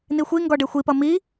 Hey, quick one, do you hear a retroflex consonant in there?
yes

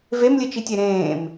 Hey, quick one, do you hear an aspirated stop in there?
no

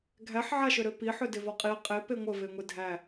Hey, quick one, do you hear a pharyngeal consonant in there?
yes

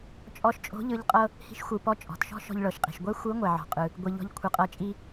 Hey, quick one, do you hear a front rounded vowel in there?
no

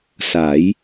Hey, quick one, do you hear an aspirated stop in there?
no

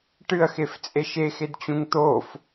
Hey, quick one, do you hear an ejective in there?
yes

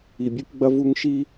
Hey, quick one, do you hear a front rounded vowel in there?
no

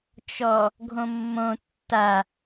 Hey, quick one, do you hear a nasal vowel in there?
yes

